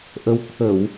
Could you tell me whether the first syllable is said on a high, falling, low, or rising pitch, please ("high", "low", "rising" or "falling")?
rising